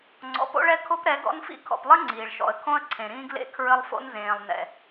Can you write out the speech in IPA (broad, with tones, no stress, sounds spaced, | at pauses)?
ŋ͡ǀ ɔ̰˨ p o̰˦ ɭ ɛ˦ kʰ o˦ p ɾ ɛ˨˦ ɡ ɔ̰˦ n f ḭ˦ kʰ ɔ̰˨ p lˠ ɘ˦ ŋ͡ǀ iː˨ ɭ ʃ ɔ̰˨ ə̯ kʰ õ˦ ə̯ ǀʰ ẽ˨ ɾ ĩː˦ ɡ l ḛ˦ kʰ ɹ ɘ˦ lˠ f o̰˦ n z ẽː˨ lˠ n ɛ̰˨